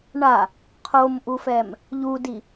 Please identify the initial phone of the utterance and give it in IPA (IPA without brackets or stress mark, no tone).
ɳ